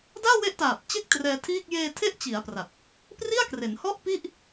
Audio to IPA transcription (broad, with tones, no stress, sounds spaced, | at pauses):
d aː˥˩ w e˦˥ ʔ t aː˨˩ p̚ t͡ɕ e˥˩ k̚ t r ɛː˧ tʰ iː˥˩ k̚ j eː˧ tʰ e˦˥ ʔ t͡ɕ i˩˦ a̯ p r a˨˩ t̚ | p r i˥˩ a̯ k r e˩˦ n h ɔ˥˩ ʔ p i˥˩ ʔ